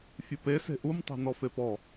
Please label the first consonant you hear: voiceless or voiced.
voiceless